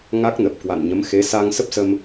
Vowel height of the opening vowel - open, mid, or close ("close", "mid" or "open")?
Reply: open